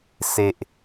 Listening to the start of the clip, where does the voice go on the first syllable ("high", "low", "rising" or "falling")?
low